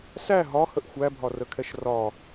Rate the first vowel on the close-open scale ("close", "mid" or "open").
open